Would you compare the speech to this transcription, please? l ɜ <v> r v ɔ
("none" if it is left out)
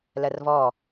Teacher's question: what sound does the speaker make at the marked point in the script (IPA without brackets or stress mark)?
none